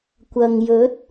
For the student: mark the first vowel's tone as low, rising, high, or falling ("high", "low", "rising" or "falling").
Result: low